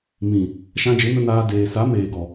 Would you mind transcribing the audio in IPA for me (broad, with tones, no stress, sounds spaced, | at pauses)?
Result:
m ĩ˨ | ʃ ã˧ d͡ʒ e˨˦ n ə˧ n aː˧ d eː˨ s a˨˦ m eː˨ ɡ ɔ˨